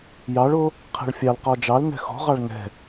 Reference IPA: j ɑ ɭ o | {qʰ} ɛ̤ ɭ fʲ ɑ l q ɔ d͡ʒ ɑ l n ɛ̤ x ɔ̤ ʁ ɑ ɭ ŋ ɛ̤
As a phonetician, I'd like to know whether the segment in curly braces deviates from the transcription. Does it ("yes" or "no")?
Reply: no